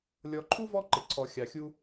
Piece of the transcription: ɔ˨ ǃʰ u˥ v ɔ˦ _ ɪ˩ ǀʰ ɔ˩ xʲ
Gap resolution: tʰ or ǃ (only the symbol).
ǃ